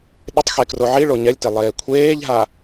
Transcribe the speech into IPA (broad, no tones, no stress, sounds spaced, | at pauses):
ɗ ɪ tˤ x e k r o ʕ i ɭ o ɲ ɛ lʲ t ɪ lˠ eː kʷʰ eː ʎ ɦ a